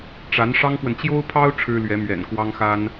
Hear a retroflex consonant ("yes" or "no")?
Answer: yes